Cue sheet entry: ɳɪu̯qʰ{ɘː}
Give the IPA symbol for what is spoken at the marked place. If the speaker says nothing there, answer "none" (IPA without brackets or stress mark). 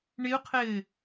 ɘː